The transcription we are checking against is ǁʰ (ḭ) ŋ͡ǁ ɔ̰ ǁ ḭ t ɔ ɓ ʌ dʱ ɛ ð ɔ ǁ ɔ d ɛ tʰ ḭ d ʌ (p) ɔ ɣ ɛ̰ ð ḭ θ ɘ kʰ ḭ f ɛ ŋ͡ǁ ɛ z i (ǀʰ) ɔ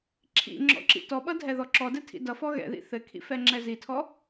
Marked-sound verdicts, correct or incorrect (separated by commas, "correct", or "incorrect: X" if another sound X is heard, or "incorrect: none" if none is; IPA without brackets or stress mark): correct, incorrect: f, incorrect: tʰ